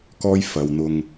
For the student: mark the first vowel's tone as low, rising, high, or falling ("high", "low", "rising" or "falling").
high